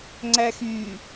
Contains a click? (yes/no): yes